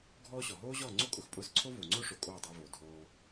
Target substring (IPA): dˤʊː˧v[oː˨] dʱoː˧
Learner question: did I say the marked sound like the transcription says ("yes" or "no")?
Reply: yes